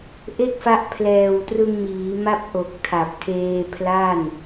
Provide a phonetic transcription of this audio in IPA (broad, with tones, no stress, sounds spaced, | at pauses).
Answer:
ʔ e˥˩ k̚ f a˦˥ ʔ pʰ l ɛː˨˩ w t r ɯ˧ ŋ m iː˩˦ m a˥˩ p̚ ʔ o˨˩ k̚ tʰ a˨˩ p̚ tʰ eː˧ pʰ l a˥˩ n